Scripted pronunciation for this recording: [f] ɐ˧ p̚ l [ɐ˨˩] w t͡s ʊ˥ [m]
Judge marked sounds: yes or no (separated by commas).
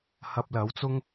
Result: no, no, no